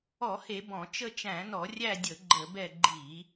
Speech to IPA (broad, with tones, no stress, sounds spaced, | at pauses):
ɔ˧˩˧ h e˧˩˧ b ɔ̃˧˩˧ t͡ʃ ə˦˨ t͡ʃ æ̃˧˩˧ n ɔ˧˩˧ rʲ æ˦˨ dʲ ə˧˩˧ ɡ͡ǃ ə˧˩˧ b ɛ˦˨ ɡ͡ǃ i˧˩˧